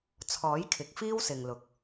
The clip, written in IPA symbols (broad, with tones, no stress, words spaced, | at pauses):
t͡sʰɔː˨˥j kʰɪ˨k̚fiː˥wsɪ˨ŋ lʊ˨˥k̚